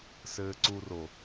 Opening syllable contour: low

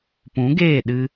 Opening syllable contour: rising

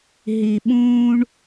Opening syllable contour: low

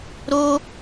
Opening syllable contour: high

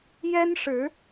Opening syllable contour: high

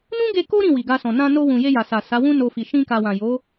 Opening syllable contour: high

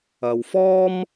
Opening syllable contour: low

